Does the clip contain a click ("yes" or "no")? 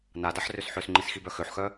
yes